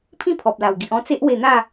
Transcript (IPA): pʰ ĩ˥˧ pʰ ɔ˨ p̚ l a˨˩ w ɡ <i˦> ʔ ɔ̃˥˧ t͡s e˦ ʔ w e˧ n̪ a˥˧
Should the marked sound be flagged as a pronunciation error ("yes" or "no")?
yes